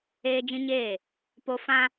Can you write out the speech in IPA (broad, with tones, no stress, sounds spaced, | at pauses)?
eː˦ d͡ʒ ĩ˦ ɲ eː˦˨ | p o˦ f ã˦